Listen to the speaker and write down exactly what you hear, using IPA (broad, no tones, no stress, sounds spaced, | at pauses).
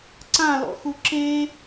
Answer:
ǀ ã l ɔ̰ x u ǁ e